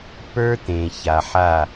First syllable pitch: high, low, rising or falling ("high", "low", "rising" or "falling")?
high